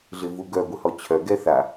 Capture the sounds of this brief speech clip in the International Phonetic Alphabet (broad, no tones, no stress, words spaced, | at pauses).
ɮɪvuɡœ ɡʷɪhɔt͡ɕʰœ ɡɛθa